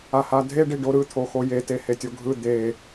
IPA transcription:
a h a dʱ e ɖ i ɖ o ɾ ɯ t̪ʰ o x o j e t e h e tʲ o ɡʱ ɯ d̪ e

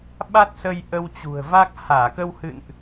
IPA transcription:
ɓ a˦˥ t̚ s ə˧ j ʔ ə˧ w t͡ɕ ṳ˨˩ ə̯ v a˦˥ k̚ h aː˧˩ k ə˧ w h ɨ̰˧˨ n ʔ

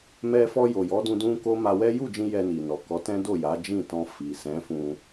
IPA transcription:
m ɛ˧ f ɔ˧ j o˨ j ɔ˨˦ d ũ˧ d ũ˦ k o˦ m a˧ w ɛ˦ j u˦˨ d͡ʒ ĩ˧ j ɛ˧ n i˨ n ɔ˨ k ɔ˨˦ t ɛ̃˦ d o˦˨ j a˨˦ d͡ʒ ĩ˦˨ t ɔ̃˧ f i˨ s ɛ̃˨˦ f ũ˧

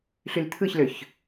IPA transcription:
ɬ y l t̪ʰ ɯ ç l ø ç

